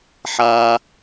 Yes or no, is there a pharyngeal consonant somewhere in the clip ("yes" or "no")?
yes